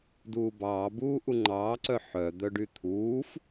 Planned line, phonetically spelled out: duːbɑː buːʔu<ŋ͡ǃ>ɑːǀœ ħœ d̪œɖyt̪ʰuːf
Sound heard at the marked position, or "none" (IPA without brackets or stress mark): ŋ͡ǃ